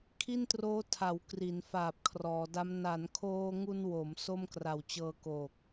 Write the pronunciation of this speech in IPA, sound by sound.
kʰ i˥˩ n t r oː˦˥ tʰ a˩˦ w k r i˩˦ n f aː˨˩ p̚ kʰ r ɔː˩˦ d a˦˥ m n a˩˦ n kʰ oː˧ ŋ u˧ n w o˩˦ m s o˥˩ m k r a˨˩ w t͡ɕ ɤː˧ k oː˨˩ k̚

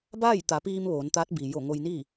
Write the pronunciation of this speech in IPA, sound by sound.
b aː˥˨ j t̪ a˩˧ p iː˧ m ʋ oː˩˧ n t̪ aː˧˥ t̚ b i˩ j o˧˩ ŋ o˧ j n i˥˨

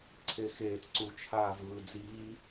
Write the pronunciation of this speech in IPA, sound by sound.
ǀʰ e x eː t ǀ u t͡ʃʰ aː v ɯː d͡z iː

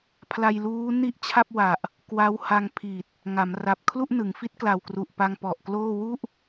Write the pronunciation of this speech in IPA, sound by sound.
pʰ l a˧ j l uː˦˥ n i˥˩ ʔ t͡ɕʰ a˥˩ p̚ w a˨˩ ʔ | k w a˦˥ w h a˧ ŋ pʰ i˨˩ t̚ | ŋ a˩˦ m r a˨˩ p̚ kʰ l u˥˩ ʔ n ɯ˩˦ ŋ f i˦˥ t̚ k l a˨˩ w k r u˨˩ ʔ p a˧ ŋ p ɔ˨˩ ʔ k l oː˥˩ w u˥˩ ʔ

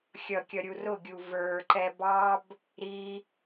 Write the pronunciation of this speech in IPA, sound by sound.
xʲ ʌ kʲ ʌ ɾʲ u r ʊ ɡʲ u v ə˞ ǃ ɛ b ɑ b | ɾ i

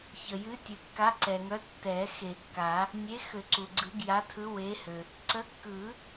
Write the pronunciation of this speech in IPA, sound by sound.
ç ə˩ j ɨ˨˥ tʲ ɨ˩ kː a˨˥ ǀ ɛ˩ ŋ œ˨˥ tː ɛ˨˩˦ x e˨˩˦ kː a˨˩˦ | nʲ e˨˥ x ø˨˩˦ ǀ u˩ ɡ͡ǀ ɯ˨˩˦ ɡ j a˨˥ tʰ ɯ˨˥ w e˨˥ h ø˩ | ǀ ə˨˥ kː ɯ˨˩˦

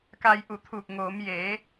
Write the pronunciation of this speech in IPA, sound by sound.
k a˧ j ʔ u˧˩ t̪ʰ uː˧˩ k̚ ŋ oː˩˧ m j e˩˧

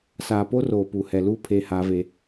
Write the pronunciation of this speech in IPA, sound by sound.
s aː˨ p o˦ r oː˨ p u˨ h ɛ˨ l uː˦ pʰ eː˦ h aː˦ v e˦

